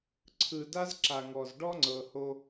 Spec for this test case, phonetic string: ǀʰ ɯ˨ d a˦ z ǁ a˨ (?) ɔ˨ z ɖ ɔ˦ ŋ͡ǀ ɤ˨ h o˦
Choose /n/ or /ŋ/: ŋ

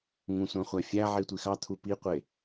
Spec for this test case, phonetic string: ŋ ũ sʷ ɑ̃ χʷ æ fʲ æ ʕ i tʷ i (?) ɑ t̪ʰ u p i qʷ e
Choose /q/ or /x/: x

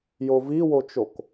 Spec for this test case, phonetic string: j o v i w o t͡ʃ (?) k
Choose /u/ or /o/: o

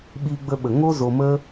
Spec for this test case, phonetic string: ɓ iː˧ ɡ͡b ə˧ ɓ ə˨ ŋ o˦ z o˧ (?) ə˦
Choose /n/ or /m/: m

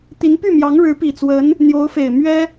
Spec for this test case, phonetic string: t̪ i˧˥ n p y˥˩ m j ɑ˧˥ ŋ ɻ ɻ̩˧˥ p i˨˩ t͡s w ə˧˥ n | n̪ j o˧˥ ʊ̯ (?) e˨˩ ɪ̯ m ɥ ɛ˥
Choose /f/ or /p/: f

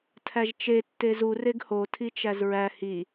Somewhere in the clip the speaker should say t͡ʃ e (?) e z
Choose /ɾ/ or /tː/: tː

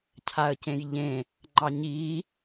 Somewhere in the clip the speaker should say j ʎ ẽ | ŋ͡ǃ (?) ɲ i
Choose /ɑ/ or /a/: ɑ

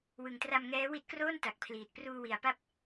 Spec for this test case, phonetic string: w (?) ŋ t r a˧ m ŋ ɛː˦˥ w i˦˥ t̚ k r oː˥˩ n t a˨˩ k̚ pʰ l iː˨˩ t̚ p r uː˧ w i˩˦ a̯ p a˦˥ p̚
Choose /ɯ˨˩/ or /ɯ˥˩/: ɯ˨˩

